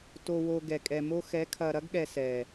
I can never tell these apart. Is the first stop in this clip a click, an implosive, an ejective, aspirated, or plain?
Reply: plain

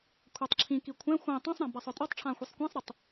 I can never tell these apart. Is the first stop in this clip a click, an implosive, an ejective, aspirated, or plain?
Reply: aspirated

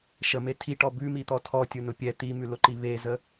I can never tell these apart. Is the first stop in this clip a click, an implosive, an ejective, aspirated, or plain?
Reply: aspirated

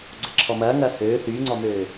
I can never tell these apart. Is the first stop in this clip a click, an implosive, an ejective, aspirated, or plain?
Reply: click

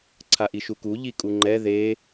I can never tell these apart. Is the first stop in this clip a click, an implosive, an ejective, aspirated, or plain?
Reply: click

